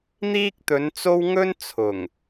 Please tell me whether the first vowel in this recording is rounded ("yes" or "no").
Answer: no